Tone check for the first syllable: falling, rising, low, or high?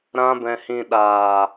high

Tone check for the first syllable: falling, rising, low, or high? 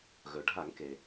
low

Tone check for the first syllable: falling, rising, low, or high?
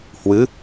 rising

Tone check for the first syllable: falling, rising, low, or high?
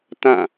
falling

